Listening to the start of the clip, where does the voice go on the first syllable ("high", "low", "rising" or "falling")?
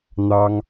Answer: high